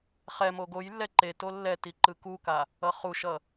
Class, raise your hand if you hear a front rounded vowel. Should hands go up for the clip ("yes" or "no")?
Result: no